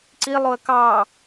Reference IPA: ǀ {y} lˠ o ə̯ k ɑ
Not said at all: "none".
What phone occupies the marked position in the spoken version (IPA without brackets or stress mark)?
i